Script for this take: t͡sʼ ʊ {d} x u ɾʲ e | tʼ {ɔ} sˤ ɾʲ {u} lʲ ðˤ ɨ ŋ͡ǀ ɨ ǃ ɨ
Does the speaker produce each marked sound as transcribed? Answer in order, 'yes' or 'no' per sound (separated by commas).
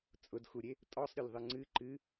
yes, yes, no